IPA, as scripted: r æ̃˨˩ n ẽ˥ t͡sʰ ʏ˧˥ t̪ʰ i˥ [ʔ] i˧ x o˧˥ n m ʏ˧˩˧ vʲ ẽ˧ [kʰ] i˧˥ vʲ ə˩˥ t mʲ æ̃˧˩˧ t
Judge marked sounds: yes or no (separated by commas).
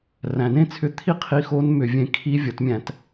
no, yes